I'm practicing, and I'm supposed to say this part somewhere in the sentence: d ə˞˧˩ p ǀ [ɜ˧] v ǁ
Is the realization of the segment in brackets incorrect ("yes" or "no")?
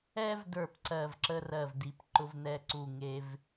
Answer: yes